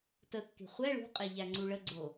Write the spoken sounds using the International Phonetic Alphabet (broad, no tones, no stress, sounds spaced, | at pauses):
t ə kː e̤ χʷ ɛ ɭ ṳ qʼ e ʎ æ ŋ͡ǀ u ɭ ə ɡ͡ǀ o